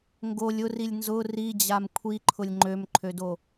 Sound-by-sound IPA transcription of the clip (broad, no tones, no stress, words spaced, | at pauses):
ŋɡolʲ ʊrilʲ nzʊ rid͡ʑam kʷʰiǃʰʊlʲ ŋ͡ǃømǃʰødo